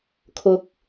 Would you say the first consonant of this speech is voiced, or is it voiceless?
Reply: voiceless